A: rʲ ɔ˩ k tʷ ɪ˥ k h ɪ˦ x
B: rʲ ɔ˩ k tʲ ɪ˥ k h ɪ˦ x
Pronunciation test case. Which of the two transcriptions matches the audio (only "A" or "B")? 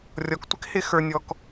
A